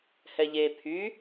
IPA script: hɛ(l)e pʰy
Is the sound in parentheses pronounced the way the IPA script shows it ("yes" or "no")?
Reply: no